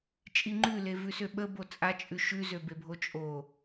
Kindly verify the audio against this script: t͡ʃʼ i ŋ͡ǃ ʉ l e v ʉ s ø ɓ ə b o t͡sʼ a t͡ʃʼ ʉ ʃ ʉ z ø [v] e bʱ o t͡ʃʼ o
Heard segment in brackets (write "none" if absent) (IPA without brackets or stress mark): b